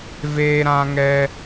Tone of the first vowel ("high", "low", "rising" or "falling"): high